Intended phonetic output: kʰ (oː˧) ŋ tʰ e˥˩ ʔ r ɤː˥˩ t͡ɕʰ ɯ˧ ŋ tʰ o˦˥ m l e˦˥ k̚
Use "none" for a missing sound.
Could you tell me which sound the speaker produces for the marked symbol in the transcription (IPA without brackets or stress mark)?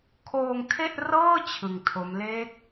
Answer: oː˧